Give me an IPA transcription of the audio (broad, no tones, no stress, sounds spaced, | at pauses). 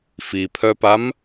f i pʰ œ p a m